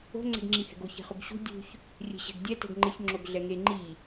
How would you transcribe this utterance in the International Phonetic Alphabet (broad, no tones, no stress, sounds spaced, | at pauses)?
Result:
o̤ ŋ͡ǀ ɛ̤ ɡ ŋ͡ǁ i h ɛ̤ ɡ o ç ɛ̤ χ ʊ ɡ ɕ ṳ dʲ ṳ ç | rʲ e̤ ɕ ɛ̤ ɡ dʲ ɛ t ɛ̤ ɡ ŋ͡ǃ ɪ ç ŋ͡ǁ o ɡ ɮ ɛ ŋ e ŋ͡ǃ i